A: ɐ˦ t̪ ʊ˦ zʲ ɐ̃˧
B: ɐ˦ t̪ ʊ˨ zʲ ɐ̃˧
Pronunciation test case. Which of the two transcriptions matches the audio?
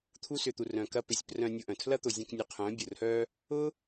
B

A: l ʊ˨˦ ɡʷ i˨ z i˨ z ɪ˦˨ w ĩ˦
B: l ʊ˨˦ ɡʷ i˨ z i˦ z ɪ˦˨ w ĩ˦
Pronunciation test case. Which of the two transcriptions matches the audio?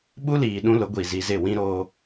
A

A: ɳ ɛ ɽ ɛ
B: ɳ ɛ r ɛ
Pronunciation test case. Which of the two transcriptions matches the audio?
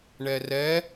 B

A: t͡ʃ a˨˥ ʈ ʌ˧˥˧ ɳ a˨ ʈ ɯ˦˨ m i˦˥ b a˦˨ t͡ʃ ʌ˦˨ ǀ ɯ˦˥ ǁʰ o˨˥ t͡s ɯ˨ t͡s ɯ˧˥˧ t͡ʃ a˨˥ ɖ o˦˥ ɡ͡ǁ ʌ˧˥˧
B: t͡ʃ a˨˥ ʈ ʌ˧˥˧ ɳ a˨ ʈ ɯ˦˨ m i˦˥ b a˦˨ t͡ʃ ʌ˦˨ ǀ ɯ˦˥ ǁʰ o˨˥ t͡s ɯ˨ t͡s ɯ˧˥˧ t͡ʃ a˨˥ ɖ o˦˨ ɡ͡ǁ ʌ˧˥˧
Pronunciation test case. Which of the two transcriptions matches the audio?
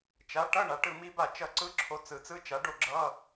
B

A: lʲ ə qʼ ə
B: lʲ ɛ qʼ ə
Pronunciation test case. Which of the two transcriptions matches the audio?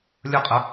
A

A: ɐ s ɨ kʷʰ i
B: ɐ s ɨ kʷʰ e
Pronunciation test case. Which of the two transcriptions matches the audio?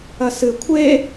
B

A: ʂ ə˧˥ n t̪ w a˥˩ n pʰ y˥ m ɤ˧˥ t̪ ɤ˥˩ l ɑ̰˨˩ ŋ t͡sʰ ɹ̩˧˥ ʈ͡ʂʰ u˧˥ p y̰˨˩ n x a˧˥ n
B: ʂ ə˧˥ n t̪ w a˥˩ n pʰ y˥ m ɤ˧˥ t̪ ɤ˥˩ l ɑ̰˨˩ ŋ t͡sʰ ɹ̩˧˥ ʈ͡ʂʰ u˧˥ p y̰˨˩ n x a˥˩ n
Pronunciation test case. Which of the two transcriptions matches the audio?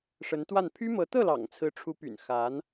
A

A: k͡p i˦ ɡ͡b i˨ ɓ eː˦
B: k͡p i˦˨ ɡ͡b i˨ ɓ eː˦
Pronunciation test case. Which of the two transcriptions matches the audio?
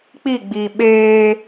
B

